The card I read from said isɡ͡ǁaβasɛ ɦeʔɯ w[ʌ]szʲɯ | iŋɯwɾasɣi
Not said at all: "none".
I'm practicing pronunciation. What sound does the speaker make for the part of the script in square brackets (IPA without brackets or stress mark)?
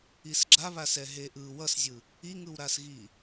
ʌ